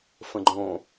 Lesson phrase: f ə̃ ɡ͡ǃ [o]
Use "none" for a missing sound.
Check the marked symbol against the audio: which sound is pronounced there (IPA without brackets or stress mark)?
õ